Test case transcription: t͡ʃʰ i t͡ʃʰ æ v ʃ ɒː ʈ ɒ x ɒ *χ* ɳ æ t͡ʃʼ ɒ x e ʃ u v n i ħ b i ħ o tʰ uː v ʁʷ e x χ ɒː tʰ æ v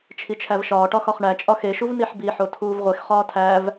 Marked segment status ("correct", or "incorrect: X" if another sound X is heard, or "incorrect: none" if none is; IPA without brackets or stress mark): correct